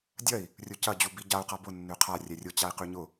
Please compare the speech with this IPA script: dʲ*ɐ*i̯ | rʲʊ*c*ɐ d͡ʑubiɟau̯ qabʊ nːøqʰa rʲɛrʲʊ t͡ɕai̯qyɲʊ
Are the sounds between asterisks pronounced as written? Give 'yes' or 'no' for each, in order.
yes, yes

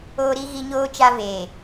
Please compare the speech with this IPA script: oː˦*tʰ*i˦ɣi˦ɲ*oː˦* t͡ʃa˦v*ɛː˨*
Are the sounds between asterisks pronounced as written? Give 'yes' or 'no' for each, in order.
no, yes, no

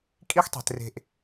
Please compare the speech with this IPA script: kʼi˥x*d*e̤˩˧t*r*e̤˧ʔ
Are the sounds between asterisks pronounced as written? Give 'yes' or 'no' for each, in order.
no, yes

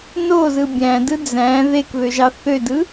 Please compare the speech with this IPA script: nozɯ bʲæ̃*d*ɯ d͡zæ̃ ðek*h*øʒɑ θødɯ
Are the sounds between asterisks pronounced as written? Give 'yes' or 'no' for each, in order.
yes, no

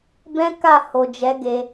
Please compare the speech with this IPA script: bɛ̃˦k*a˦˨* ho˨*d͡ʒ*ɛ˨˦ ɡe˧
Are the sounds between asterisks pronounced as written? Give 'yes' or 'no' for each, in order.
yes, yes

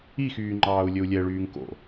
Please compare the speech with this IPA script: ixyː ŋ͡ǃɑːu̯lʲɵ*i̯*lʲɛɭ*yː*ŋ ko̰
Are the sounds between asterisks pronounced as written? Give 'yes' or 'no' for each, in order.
no, yes

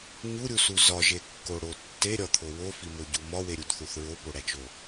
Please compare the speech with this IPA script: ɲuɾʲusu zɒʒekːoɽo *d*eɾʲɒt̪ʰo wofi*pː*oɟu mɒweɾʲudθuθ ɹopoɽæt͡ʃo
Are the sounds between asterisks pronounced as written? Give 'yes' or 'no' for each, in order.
no, no

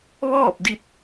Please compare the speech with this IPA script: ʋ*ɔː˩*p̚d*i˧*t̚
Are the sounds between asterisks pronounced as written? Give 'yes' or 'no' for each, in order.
no, yes

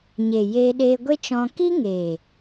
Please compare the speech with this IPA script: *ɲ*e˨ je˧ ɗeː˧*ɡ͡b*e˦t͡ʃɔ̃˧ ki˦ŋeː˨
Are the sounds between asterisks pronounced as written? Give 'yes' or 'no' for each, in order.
yes, no

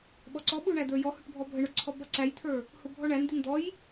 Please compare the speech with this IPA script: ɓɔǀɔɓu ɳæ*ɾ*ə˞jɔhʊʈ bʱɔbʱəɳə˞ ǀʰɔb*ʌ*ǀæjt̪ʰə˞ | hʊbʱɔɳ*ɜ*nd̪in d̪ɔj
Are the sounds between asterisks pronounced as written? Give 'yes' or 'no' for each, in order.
no, yes, no

